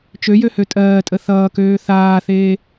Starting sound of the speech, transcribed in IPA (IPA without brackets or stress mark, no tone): t͡ʃ